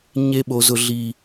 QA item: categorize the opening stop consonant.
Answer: implosive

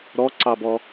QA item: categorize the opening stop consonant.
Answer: click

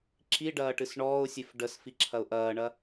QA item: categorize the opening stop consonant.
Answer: click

